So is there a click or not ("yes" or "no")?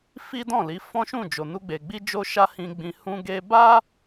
no